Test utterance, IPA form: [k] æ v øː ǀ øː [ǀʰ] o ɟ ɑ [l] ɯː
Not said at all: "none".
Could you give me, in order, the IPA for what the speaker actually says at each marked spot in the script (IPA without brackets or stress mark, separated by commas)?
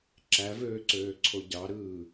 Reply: ǁ, ǀʰ, ɾ